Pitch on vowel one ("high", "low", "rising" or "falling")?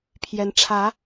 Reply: rising